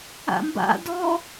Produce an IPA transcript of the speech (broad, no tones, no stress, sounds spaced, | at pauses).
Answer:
a̰ m b a̰ d ɔ